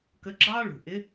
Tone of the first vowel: rising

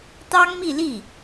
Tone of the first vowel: high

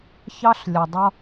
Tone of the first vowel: high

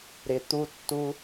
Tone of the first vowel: low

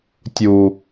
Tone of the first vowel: low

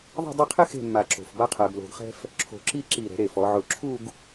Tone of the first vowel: falling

